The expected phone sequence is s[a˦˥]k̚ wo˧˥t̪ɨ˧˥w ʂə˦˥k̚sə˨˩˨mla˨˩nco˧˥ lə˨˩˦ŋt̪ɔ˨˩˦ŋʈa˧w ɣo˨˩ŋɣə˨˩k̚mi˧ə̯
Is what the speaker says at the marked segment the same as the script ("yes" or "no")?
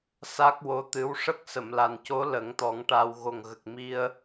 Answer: yes